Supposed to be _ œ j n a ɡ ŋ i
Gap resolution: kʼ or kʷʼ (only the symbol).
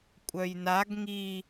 kʷʼ